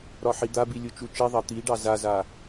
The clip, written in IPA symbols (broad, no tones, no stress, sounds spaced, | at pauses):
ɾ ɒ ħ i d̪ a b i lʲ u t͡ʃ u t͡ʃ i ðˤ ɑ t̪ i ɖ ɑ z a z a